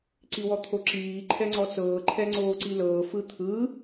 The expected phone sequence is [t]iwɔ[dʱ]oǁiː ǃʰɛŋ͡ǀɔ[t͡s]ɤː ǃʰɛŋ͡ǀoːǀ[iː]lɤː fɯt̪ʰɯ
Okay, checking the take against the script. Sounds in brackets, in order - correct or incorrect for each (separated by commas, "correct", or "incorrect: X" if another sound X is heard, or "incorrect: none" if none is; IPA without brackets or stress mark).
incorrect: ǀ, incorrect: t̪ʰ, correct, incorrect: i